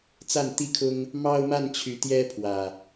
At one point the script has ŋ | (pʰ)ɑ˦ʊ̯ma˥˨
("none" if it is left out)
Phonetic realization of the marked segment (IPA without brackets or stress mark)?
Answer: m